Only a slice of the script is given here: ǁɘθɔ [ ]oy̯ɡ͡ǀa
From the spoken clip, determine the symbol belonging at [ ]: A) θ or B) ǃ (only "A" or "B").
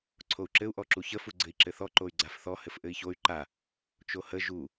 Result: B